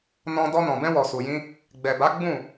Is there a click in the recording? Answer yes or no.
no